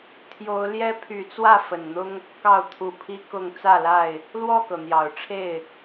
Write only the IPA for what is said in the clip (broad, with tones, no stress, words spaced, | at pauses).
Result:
t̪ʰjo˨˦ʊ̯ ljɛ˦ pʰy˨˦t͡swä˥˨fə˨˩nn̪ʊ˦ŋ | kɑ˥˨ʊ̯t̪ʰu˨˦pʰi˦kʊ˥˨ŋ t͡sä˥˨la˥˨ɪ̯ | lwɔ˥˨kɤ˩n̪jɑ˨˩ʊ̯ʈ͡ʂʰe˥˨ɪ̯